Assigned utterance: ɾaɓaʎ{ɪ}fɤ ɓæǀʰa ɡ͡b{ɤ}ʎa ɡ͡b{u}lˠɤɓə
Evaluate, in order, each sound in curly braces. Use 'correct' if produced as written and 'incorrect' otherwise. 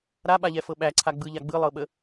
incorrect: ɛ, incorrect: ɯ, incorrect: ɯ

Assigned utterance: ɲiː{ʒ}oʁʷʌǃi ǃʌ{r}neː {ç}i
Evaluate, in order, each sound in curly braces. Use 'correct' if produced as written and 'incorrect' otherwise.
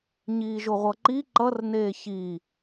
correct, correct, correct

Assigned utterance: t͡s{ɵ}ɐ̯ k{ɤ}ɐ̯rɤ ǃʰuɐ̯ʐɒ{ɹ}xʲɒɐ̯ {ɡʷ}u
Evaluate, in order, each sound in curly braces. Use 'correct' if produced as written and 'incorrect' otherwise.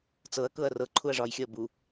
incorrect: ɤ, correct, incorrect: j, incorrect: b

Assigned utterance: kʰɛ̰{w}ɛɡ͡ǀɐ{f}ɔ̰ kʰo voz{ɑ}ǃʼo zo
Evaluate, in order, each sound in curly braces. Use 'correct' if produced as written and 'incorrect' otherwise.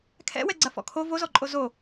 correct, correct, incorrect: ɔ

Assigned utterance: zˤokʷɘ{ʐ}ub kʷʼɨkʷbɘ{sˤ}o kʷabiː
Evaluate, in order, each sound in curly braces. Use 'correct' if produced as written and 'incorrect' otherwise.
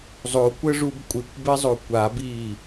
correct, incorrect: zˤ

